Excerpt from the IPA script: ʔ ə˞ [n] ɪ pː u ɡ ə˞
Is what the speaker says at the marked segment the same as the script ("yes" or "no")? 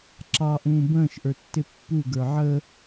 no